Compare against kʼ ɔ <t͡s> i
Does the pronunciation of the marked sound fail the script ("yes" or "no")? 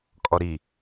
yes